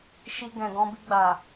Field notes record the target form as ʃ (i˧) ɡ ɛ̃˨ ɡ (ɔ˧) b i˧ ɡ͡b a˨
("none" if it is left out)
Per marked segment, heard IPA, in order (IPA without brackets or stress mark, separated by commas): i˧, ɔ̃˧